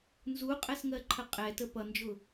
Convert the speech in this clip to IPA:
n z u qʼ ɛ s ŋ ɜ ǃʰ ə qʼ ɛ t ə p ʌ n d͡ʒ ʊ

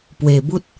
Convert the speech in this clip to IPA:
p w e˨˩ b u˦ t̚

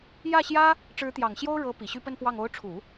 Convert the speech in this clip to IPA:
j ä˥˩ ɕ j ä˥ | ʈ͡ʂ ɻ̩˧˥ t̪ j ɑ˨˩ ŋ ɕ j o˥ ʊ̯ ɻ ɤ˧˥ p i˨˩ ɕ y˥˧ p ə˥˧ n p w ɑ˥˩ ŋ o˧˥ ʊ̯ ʈ͡ʂʰ u˨˩˦

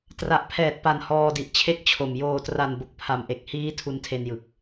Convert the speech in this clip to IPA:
t r a˨˩ ʔ pʰ ɛː˨˩ t̚ p a˨˩ n h ɔː˧ d i˨˩ ʔ t͡ɕʰ e˥˩ k̚ t͡ɕʰ o˨˩ m j oː˨˩ t r a˨˩ n b o˨˩ k̚ pʰ a˨˩ m ʔ e˨˩ k̚ h iː˦˥ tʰ u˧ n tʰ e˧ n j ɯ˨˩ k̚

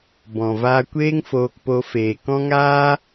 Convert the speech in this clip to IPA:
b ɔ̃˨ v aː˧ kʷ eː˦ ŋ f oː˧ k p o˧ f eː˨ k ɔ̃˦ ŋ aː˦

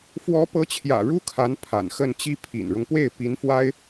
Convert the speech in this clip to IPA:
f w ɔ˧˥ p ɤ˧˥ t͡ɕʰ j ä̰˨˩ ɻ u˥ kʰ a˧˥ n pʰ a̰˨˩ n x ə˥˩ n t͡ɕ i˥ pʰ ḭ˨˩ n ɻ ʊ˦ ŋ p w e˥˩ ɪ̯ p i˧˥ n f w a˥ ɪ̯

